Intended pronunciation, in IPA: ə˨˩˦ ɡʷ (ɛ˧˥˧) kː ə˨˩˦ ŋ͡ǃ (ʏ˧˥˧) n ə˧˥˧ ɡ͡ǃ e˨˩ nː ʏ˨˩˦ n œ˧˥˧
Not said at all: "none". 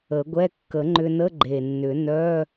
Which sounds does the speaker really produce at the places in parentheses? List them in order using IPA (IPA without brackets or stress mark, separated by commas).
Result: ɛ˧˥˧, ʏ˧